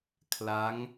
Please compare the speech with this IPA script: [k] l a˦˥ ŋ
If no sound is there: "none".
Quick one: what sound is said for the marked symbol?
kʰ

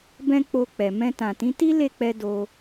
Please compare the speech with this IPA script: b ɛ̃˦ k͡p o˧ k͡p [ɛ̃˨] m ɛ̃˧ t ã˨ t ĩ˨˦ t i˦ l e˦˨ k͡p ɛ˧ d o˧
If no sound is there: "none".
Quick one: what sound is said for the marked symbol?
ɛ˨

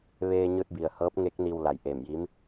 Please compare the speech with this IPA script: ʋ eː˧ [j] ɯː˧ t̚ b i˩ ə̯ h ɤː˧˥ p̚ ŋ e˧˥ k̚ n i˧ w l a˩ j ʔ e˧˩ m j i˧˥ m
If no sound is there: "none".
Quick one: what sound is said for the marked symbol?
ɲ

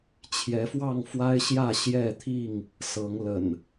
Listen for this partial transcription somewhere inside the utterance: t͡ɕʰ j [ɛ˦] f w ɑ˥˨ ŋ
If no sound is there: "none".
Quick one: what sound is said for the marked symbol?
ɛ˨˦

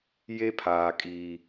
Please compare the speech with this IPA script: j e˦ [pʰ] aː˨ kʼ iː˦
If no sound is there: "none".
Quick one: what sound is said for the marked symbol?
pʰ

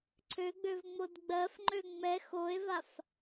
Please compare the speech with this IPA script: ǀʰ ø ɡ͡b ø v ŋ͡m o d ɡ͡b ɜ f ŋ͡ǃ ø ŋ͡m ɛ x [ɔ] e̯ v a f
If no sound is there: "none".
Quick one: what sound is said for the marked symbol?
o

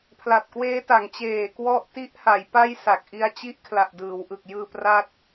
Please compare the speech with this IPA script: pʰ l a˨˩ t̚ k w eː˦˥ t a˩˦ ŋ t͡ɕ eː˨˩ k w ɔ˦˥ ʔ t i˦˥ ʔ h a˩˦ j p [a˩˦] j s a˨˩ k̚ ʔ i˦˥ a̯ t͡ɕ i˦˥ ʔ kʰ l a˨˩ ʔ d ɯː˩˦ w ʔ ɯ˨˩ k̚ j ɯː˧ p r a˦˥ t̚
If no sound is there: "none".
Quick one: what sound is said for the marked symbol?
a˥˩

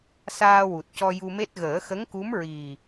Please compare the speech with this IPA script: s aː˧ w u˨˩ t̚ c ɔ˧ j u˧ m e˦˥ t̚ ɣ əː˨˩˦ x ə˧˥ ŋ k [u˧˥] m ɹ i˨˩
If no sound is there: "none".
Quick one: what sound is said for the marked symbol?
u˧˥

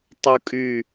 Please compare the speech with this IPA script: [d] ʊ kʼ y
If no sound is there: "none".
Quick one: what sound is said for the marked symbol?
tˤ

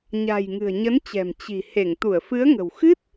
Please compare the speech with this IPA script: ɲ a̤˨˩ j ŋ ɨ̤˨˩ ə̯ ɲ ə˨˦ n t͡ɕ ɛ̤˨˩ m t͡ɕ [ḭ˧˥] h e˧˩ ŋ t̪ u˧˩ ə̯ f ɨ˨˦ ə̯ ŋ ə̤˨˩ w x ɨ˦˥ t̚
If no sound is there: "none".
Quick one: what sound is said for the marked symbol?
i̤˨˩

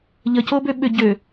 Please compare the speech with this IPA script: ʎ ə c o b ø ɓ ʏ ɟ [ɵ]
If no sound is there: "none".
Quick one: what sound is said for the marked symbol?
ø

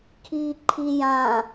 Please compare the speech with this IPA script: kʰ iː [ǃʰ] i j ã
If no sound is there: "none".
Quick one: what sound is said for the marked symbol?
ǃʰ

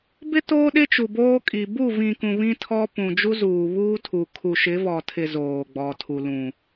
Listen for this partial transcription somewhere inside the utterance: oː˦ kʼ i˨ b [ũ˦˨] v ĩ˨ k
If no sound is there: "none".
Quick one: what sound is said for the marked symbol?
u˦˨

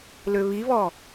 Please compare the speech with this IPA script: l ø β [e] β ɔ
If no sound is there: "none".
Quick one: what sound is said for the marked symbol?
i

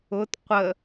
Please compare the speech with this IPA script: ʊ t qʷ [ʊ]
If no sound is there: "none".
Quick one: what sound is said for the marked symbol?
ə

